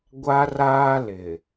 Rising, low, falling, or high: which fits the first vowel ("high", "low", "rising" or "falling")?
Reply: high